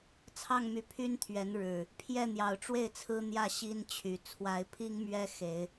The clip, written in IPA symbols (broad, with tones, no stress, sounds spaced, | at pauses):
t͡sʰ ɑ˥˨ ŋ m y˨˩ pʰ y˦ n t̪ʰ ɥ ɛ˨˦ n ɻ ɻ̩˨˩ | pʰ j ɛ˥˨ n̪ j ɑ˨˩ ʊ̯ ʈ͡ʂ w e˥˨ ɪ̯ t͡sʰ ɹ̩˦ n̪ j ä˥˨ ɕ i˦ n t͡ɕʰ y˨˩ t͡sʰ w a˨˦ ɪ̯ pʰ i˦ ŋ m ɥ ɛ˦ x e˨˦ ɪ̯